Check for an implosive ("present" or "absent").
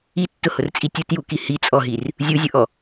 absent